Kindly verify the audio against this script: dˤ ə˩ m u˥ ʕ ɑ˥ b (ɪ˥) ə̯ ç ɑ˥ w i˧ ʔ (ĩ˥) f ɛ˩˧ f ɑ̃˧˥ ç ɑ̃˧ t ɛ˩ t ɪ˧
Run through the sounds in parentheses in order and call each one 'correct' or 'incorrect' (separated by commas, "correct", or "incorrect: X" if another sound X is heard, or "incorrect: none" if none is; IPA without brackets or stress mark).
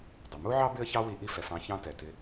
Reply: correct, incorrect: i˥